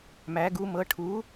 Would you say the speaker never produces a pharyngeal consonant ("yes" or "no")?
yes